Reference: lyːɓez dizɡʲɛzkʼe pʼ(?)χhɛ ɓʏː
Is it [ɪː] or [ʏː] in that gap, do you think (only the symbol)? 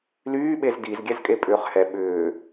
ʏː